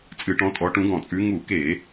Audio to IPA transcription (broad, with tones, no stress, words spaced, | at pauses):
t͡sʼɨ˧˩˧ʈɔ̃˨˦ tʼɔ˨˦ʈũ˨˦ɡɔ̃˧˩˧t͡sʼʉ˨˦ ŋu˧˩˧ke˧˩˧